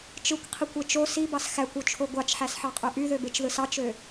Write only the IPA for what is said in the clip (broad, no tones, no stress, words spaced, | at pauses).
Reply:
t͡ʃɯkʷqʰikʷe t͡ʃo sibɑs xækʷot͡ʃʰo ɡʷɑt͡ʃħæsħɑqʼø ʔyðøbet͡ʃðɯs ɑt͡ʃø